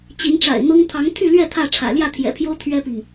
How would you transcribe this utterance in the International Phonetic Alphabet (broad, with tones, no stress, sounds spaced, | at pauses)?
t͡ɕ i˨˦ n ʈ͡ʂ a̰˨˩ ɪ̯ n̪ ɤ˦ ŋ t̪ʰ ɑ˨˦ ŋ t̪ʰ y˥˨ l ɥ ɛ˥˨ t̪ʰ ä˥˨ ʈ͡ʂʰ ä̰˨˩ l j ä˥˨ t̪ʰ j ɛ̰˨˩ pʰ j o˦ ʊ̯ t̪ʰ ɥ ɛ˦ p i˨ ŋ